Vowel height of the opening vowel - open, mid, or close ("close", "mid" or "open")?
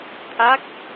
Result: open